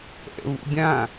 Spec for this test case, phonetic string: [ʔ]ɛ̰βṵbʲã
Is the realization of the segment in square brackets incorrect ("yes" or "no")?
no